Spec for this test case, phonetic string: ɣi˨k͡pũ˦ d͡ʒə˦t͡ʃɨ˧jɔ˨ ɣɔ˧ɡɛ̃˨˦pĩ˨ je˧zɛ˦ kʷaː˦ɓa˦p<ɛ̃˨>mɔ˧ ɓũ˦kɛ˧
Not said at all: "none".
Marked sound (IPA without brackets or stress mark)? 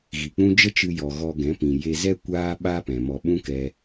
ɛ̃˨